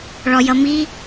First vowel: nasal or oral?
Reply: oral